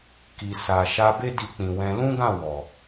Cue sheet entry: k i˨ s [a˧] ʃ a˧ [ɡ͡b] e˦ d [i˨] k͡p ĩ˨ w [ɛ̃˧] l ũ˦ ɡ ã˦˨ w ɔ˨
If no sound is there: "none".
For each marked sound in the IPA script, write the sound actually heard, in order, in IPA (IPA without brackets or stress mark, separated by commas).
a˨, b, i˧, ɛ̃˧